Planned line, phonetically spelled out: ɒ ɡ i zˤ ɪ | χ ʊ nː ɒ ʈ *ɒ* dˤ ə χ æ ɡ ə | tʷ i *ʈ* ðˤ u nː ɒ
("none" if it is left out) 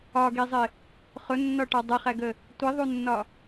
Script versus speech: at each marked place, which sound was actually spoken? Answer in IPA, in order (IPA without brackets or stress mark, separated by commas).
ɒ, none